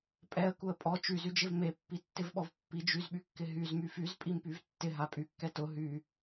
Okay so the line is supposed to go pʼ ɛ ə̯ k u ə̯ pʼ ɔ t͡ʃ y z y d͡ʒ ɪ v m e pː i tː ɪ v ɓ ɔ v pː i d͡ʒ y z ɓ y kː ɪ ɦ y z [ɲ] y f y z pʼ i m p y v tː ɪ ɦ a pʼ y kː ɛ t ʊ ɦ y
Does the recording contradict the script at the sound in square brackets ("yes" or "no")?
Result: yes